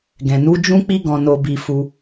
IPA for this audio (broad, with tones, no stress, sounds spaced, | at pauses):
ɡ ɛ̃˨ n u˨˦ d͡ʒ ũ˦ k͡p i˦ ɡ ɔ̃˧ n o˧ b i˧ f u˧